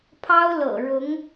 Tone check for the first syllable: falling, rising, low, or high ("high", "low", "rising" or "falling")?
high